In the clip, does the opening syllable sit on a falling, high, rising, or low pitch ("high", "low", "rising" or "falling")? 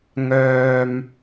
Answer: low